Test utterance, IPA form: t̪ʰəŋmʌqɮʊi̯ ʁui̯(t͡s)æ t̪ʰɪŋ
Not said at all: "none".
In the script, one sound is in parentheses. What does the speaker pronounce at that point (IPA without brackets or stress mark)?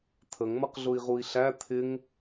ɬ